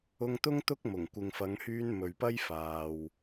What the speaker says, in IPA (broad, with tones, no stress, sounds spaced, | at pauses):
ʊ˧ ŋ t̪ ʊ˥ ŋ t̪ ʊ˥ k̚ m ʊ˨˩ ŋ kʷ ɪ˨ ŋ f ɐ˨˧ ŋ h yː˧ n m ɵ˨ ɥ p ɐ˥ j f aː˨ w